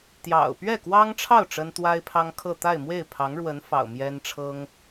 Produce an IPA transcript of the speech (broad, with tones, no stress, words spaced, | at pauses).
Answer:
t̪jɑ̰˨˩ʊ̯ pɥɛ˥˩kwɑ˥ŋʈ͡ʂʰɑ˥˩ʊ̯ ʈ͡ʂə˥nt̪wa˥ɪ̯pʰɑ˥ŋkʰɤ˥˧ t̪a˥˧ɪ̯mwe˥˩ɪ̯pʰɑ˧˥ŋɻwə˧˥n fɑ̰˨˩ʊ̯ mjɛ˥nʈ͡ʂʰɤ˥ŋ